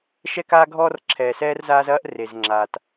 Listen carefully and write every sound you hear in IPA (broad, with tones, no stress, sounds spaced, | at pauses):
ʃ ɛ˦ k aː˦ ɡʱ ɔː˦ r ǁʰ ɛː˨ s ɛː˦ r z aː˦ z ɐː˦ ʔ r e˨ z ŋ͡ǁ aː˨ t